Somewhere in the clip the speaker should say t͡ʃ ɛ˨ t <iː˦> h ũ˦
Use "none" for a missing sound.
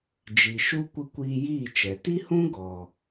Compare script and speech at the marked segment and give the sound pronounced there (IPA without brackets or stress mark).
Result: i˦